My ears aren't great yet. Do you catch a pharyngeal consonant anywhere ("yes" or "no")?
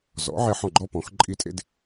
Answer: yes